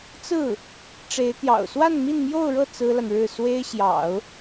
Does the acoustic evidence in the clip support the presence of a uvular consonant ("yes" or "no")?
no